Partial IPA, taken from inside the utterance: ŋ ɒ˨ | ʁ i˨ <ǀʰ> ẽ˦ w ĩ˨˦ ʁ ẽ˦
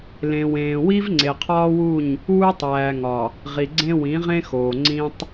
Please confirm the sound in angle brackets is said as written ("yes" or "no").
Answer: no